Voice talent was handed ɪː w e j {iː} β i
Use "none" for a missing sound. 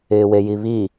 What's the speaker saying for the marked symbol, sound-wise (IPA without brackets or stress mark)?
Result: i